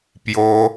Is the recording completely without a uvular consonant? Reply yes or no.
yes